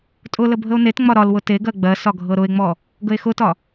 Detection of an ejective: present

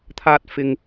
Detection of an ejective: absent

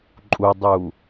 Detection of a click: present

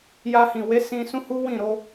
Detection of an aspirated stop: absent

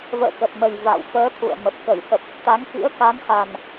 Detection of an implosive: absent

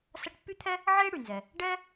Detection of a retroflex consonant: present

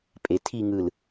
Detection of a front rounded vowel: absent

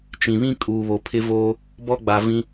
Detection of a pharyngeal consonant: absent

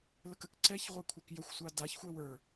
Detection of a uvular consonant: present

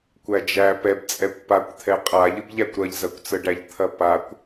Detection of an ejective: present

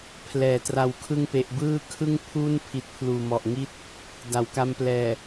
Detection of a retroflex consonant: absent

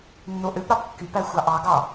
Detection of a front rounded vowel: present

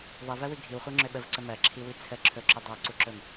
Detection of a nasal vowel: absent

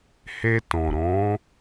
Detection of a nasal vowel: present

